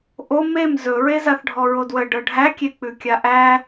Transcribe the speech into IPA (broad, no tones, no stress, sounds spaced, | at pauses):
ʔ o m e m z ɵ ɹ e z a θ ɖʱ ɔ ɹ o d w ə ɖ ɤ ɖʱ æ kʲ e k͡p ʉ kʲ a ʔ æ